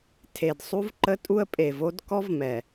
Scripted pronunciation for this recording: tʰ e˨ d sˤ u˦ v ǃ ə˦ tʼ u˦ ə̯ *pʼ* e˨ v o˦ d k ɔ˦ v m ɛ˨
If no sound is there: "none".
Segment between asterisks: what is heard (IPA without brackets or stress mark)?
pʼ